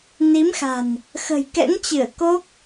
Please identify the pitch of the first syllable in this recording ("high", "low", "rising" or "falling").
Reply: rising